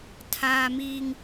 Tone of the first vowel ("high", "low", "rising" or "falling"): high